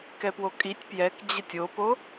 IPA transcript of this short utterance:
kɛpwokʼitʲ pjɛk d͡ʑətʲopo

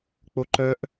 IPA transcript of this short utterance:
k͡poǃœʔ

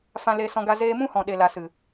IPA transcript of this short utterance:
fã˧ leː˧sɔ̃˧ɡa˧ zeː˧ mũ˦hɔ̃˨ɗe˨la˨ sɨ˨

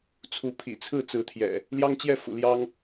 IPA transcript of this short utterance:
t͡sʰu˨˦pʰḭ˨˩t͡sʰɹ̩˥˨ t͡sɹ̩˨˦ t̪ʰjɛ̰˨˩ | ljɑ˦ŋt͡ɕjɛ˥˨fṵ˨˩ ljɑ˦ŋ

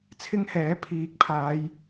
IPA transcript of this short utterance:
t͡sʰɪ˥ŋhɛː˨˥ pʰiː˨k̚pʰaː˨˧j

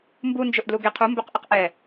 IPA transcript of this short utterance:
mbund͡ʒɵʔdlu ɡeqʰu mbɵqʔɪqʔɛ

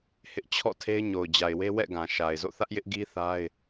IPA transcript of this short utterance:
hɪ˦ʔ t͡ɕʰɔ̰˦˨tʰe˦ɪ̯ ɲo˨ʊ̯d͡ʑa˨ɪ̯we˦wɛ̰˦˨ ɡã˨ʃa˨ɪ̯ zo̰˦˨θä˦ʔ jɪ˦ʔɡi˦θa˦ɪ̯

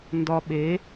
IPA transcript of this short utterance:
ndɒ˧ɓe˨˦

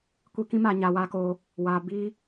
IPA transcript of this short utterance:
kʷi˦ kĩ˦maː˧ ɲaː˧waː˦koː˦ | waː˧ biː˦

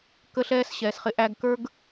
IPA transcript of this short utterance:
kə˦ɬɛː˦sɕɛː˨sχɪ˧ ʔæ˧ɡkə˞˦ɡ

